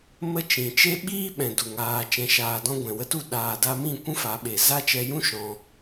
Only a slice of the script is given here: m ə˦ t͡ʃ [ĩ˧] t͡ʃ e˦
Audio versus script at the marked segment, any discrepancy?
yes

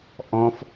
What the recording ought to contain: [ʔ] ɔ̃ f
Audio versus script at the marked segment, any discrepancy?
no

